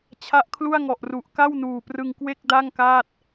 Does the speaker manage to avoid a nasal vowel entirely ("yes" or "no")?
yes